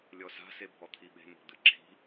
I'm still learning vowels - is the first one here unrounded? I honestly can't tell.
no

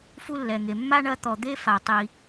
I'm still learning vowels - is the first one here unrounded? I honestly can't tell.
no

